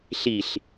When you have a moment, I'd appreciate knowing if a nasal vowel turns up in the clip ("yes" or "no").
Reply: no